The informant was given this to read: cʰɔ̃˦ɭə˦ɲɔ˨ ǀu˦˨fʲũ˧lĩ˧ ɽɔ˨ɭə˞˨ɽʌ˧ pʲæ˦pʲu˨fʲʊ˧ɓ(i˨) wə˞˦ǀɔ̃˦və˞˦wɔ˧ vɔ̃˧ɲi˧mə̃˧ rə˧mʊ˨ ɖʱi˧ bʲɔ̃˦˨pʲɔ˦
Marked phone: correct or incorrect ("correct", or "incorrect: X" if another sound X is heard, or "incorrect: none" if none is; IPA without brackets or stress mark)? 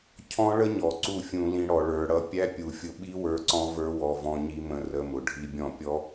incorrect: i˦